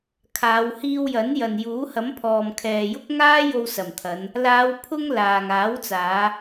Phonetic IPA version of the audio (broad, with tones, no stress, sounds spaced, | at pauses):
kʰ aː˨˧ w h iː˧ w j ɐ˨˥ n j ɐ˨ n j uː˨˥ h ɐ˨˥ m pʰ ɔː˨ m kʰ ɛː˨ j ʊ˥ k̚ ŋ aː˥ j o˧ w s ɐ˨˩ m t̪ʰ ɐ˨˧ n | l aː˨˧ w pʰ ʊ˧ ŋ l aː˨ ŋ aː˨˥ w t͡s aː˨˧